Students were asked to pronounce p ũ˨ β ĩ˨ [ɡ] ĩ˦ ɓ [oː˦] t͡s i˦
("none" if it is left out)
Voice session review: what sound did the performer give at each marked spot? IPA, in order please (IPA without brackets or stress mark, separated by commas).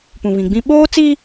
ɡ͡b, oː˦